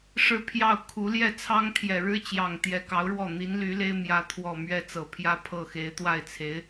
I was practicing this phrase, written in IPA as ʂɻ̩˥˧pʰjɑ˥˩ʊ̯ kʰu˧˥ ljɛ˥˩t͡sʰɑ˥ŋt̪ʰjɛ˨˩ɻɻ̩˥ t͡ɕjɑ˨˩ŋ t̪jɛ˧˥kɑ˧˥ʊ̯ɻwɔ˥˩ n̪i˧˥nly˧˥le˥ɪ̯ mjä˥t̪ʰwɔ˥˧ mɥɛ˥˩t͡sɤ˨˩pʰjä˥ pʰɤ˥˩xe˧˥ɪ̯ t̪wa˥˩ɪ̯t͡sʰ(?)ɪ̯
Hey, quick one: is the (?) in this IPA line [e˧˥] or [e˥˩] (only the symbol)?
e˧˥